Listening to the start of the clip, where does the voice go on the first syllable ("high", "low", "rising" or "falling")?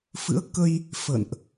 rising